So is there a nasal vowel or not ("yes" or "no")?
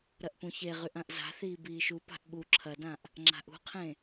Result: yes